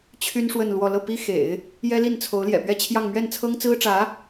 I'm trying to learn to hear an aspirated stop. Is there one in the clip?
yes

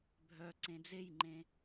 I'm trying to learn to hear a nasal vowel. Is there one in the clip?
yes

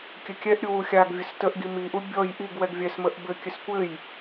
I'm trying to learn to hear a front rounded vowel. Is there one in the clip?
no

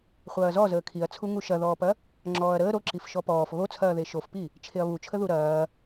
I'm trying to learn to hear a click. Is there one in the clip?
yes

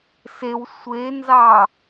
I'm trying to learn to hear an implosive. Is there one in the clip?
no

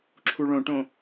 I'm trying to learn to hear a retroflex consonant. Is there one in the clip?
yes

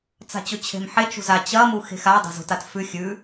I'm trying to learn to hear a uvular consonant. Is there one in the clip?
no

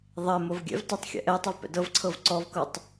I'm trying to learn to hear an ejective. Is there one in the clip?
no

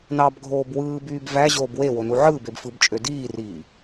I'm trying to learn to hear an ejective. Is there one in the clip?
yes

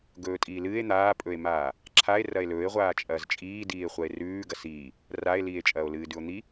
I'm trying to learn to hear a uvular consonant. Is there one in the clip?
yes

